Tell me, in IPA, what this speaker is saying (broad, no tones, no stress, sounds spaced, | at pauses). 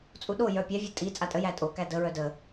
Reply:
t͡sʼ u ɗ o j œ pʲ æ vʲ ə˞ tʼ i t͡sʼ a tʼ ə j æ tʼ o k æ d ə ɹ œ d ə